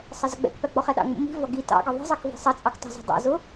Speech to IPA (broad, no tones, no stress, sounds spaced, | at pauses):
sˤ ɛ z ʌ ɡ͡b ɛ̰ k p æ ɡ͡b ɔ χ ɛ ɗ ɑ̰ ŋ͡m ṵ m i̤ v ɒ ɡ i t ɑ̰ ɡ ɒ ðˤ i̤ zˤ ɑ k v i̤ sˤ ʌ t͡sʼ ɑ k tˤ ɑ̤ z ɑ̤ dˤ ɛ̰ z ʊ